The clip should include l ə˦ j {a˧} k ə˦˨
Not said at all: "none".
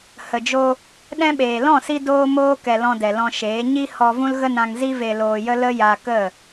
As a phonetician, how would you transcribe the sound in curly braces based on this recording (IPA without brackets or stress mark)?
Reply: a˧